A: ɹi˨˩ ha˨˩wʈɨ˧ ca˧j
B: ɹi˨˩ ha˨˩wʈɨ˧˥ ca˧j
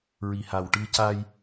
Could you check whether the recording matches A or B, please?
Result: A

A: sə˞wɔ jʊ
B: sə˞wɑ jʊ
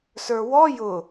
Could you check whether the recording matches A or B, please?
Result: A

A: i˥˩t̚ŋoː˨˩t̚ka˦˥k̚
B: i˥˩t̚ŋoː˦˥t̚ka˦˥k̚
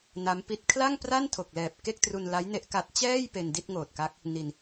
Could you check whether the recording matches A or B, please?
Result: A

